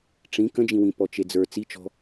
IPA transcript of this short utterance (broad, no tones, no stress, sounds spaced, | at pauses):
ʈ͡ʂ ĩ k ə̃ d͡ʒ ĩ w ĩ p ɔ t͡ʃ e d͡z ə˞ t͡s i t͡ʃ ɔ̤